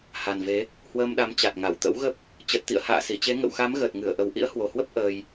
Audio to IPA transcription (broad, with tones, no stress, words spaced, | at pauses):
ha˨˩nve˨˦ | hwəː˧mɗa˨˦m t͡ɕa˨˩t̚ŋa˧˩wt̪ə̰˧˥wɣə˦˥p̚ | t͡ɕə˨˩t̚t̪ḭ˧˨ə̯ ha̰ː˧˨si˧˩t͡ɕe˨˦ ŋə̰˧˨wxa˨˦mɣəː˨˩t̚ŋɨ˧˩ə̯ ʔə˨˦w ʔḭ˧˥ə̯hwo˨˩hwə˦˥p̚ ʔəː˧j